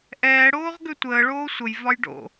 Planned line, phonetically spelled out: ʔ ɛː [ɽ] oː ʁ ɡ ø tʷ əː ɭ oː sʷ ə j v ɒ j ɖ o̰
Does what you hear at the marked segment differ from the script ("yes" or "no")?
no